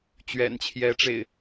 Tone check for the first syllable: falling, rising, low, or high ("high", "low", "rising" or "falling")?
low